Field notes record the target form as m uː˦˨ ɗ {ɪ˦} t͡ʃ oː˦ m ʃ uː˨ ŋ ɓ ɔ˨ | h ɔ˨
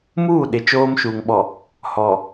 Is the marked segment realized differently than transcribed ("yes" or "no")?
yes